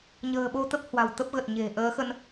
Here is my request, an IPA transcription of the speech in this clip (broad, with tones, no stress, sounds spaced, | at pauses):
ɲ ə̤ː˨˩ ɓ o˧ t̪ ə˦˥ p̚ h w a̤˨˩ w t̪ ə˦˥ p̚ ɣ ə˨˩ t̚ ɲ e̤˨˩ ʔ əː˨˦ x ə˧ n